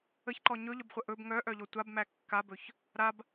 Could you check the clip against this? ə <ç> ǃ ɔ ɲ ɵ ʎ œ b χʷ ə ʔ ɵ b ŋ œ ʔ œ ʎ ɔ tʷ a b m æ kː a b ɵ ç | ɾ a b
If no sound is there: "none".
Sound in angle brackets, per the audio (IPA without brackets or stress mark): ç